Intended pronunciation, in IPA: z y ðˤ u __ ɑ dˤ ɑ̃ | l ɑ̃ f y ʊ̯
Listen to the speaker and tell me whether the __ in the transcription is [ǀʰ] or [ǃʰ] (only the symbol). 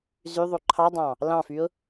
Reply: ǃʰ